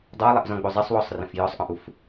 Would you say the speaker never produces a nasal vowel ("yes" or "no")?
no